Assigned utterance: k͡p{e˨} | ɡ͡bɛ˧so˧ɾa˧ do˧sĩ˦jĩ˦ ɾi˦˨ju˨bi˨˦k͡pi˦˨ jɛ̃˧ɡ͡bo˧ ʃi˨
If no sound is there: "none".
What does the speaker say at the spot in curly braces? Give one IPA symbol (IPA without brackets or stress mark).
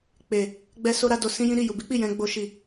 e˨